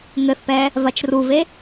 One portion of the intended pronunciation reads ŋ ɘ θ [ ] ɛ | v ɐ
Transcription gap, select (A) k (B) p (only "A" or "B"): B